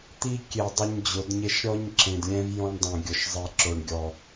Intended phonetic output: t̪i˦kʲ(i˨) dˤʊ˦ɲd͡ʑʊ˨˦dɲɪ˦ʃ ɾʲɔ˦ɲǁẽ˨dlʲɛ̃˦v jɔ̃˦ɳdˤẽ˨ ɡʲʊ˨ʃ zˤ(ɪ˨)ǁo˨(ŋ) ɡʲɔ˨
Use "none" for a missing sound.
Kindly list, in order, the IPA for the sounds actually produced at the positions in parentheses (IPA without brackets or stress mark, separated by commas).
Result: e˨, i˨, ɳ